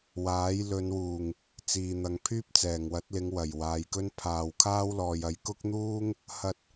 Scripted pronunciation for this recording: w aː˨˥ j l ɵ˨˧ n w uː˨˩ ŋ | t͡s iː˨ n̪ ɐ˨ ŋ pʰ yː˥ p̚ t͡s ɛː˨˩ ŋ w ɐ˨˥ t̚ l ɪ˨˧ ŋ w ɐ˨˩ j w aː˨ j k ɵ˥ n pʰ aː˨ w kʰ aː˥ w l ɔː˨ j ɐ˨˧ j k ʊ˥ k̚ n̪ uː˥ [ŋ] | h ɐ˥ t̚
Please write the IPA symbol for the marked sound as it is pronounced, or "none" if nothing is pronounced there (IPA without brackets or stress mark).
ŋ